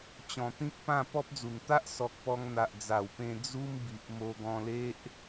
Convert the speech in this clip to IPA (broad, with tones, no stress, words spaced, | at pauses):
t͡ɕɔ̃˨˩t̪ĩ˦k̚pã˥˧ pɔ˦p̚d͡zu˨˩n t̪a˦ʔ sɔ˨k̚pɔ˧ŋ n̪a˨ʔ d͡za˨˩wpẽ˧ d͡zu˦mbi˨ʔ mo˧ɡɔ̃˧le˦ʔ